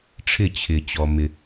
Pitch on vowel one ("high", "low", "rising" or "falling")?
falling